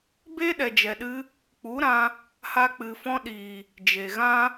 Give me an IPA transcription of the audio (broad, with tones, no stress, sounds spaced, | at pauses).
b e˦ ɗ ɛ˨ d͡ʒ ɛ˨ ɗ ɨ˧ | k͡p u˨˦ ɾ ã˧ | h a˧ k͡p ɨ˨ f ɔ̃˧ ɗ iː˨ | d͡ʒ e˨ ɣ ã˦